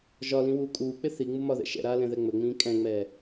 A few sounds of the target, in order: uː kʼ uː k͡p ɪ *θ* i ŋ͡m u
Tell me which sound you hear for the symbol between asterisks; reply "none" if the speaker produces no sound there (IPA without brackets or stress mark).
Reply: θ